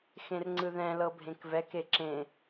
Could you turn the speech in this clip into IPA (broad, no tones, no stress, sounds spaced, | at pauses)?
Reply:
x ẽ r ŋ͡ǀ ɯ ð ɛ̃ l ɤ bʱ ẽ k v ɛ k e ǁ ẽ